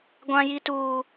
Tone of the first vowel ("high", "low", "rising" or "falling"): high